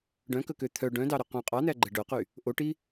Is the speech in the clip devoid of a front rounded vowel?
no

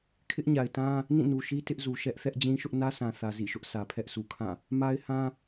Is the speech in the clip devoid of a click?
yes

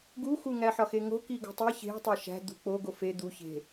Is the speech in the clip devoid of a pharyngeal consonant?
no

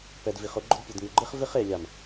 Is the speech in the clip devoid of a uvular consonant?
no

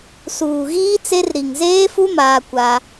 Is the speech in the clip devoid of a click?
yes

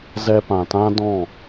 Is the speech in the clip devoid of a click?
yes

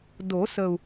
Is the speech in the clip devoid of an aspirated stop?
yes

